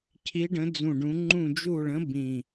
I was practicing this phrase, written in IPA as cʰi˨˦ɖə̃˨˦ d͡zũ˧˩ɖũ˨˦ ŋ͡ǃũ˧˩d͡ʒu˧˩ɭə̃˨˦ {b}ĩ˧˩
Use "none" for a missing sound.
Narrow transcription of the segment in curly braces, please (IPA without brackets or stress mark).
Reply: b